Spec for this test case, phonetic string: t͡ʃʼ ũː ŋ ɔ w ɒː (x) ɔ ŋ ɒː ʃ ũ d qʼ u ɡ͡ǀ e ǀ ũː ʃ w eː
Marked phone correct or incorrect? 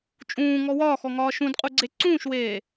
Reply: correct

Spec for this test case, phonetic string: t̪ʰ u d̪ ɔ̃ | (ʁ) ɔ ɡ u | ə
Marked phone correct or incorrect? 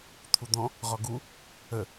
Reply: correct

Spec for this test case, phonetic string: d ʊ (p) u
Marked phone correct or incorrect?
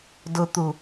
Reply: incorrect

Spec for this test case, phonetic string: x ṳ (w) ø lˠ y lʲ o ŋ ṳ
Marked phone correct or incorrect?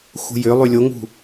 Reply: incorrect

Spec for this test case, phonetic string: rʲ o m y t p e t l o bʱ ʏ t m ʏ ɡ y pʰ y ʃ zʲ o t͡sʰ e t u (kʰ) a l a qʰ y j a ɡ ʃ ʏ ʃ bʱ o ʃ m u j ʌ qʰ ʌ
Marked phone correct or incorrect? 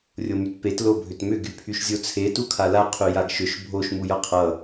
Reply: correct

